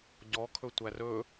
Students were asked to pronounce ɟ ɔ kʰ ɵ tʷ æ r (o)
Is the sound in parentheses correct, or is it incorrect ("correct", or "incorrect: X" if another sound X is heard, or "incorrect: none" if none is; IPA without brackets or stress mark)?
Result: incorrect: ɵ